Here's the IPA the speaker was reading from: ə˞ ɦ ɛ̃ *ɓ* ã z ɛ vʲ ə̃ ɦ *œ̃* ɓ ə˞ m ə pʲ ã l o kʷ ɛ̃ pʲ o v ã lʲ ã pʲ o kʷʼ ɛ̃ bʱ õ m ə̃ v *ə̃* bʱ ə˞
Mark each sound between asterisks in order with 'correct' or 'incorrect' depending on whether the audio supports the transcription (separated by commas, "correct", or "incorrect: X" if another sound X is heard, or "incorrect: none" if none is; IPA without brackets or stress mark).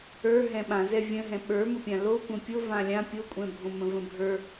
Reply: correct, incorrect: ɛ̃, correct